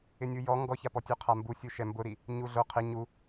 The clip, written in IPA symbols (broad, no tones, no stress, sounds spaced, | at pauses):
ɪ nʲ u j ɔ ŋ ɡ ɔ ç a p ɔ tʲ u qʰ a m b u sʲ u ʃ ɛ m b ʊ ɾ i | ɲ u ɮ o qʰ ɪ ɲ u